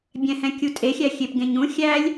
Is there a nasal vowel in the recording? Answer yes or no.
yes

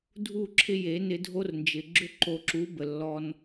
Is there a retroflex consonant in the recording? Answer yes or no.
no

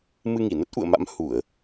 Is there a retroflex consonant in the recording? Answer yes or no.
no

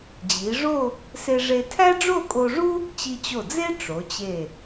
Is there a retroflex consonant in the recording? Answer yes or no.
yes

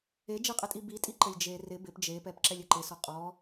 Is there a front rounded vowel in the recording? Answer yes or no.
no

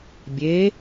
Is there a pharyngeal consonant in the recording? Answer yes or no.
no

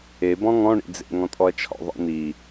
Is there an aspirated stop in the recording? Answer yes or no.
yes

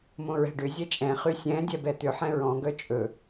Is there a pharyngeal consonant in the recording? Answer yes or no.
yes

